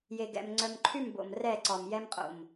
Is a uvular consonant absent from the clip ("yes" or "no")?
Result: no